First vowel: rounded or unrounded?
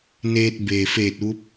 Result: unrounded